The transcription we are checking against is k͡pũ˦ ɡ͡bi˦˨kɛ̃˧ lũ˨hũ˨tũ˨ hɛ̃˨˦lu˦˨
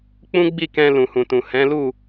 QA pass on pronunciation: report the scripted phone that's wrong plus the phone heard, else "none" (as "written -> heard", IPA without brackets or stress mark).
none